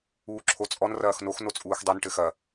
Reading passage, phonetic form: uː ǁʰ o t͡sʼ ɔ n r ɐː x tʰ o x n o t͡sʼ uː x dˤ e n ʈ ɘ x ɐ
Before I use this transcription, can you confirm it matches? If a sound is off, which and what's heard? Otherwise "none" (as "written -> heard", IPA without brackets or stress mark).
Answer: tʰ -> n